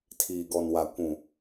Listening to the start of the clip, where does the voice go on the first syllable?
low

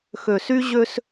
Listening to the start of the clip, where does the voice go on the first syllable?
low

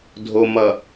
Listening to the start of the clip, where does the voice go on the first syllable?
low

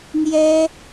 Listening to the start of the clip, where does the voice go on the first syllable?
high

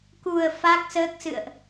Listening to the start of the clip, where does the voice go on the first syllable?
low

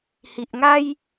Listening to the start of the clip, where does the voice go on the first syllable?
low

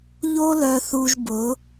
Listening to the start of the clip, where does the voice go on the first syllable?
high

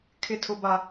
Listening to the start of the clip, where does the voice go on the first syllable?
high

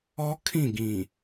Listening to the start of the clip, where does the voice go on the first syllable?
high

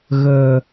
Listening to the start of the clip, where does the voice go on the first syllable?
low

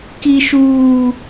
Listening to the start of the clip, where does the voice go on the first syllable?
high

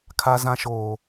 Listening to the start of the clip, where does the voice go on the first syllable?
low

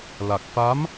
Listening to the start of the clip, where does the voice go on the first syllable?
low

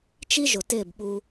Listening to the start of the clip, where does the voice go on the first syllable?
high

